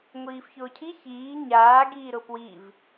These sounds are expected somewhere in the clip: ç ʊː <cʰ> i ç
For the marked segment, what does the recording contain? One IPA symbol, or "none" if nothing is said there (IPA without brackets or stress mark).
cʰ